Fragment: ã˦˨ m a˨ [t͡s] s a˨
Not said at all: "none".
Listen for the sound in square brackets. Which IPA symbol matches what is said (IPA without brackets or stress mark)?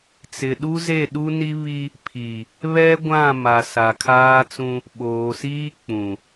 none